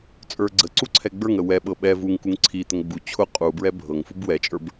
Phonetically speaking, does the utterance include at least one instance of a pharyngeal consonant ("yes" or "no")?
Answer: no